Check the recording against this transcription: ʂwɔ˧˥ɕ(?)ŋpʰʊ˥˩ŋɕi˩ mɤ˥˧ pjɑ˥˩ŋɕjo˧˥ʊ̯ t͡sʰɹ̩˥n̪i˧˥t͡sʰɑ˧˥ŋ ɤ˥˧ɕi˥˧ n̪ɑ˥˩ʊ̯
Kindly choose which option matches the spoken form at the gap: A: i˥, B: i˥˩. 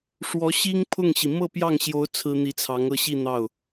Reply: A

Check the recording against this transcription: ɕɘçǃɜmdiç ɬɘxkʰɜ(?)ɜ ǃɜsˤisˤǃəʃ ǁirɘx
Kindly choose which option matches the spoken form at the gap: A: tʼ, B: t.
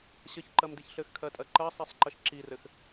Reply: A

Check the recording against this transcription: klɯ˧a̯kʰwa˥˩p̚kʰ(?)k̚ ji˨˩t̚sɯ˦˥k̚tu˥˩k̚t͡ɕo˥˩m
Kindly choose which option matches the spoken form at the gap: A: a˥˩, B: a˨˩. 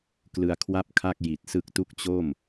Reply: A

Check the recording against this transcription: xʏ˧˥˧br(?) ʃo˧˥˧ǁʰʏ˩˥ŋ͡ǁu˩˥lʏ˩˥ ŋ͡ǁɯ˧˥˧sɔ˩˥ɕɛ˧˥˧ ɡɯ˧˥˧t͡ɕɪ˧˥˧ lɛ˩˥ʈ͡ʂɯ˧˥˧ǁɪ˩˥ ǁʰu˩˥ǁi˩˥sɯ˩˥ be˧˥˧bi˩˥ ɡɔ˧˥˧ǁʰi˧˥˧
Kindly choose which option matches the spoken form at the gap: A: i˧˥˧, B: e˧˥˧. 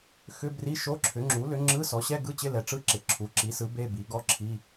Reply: A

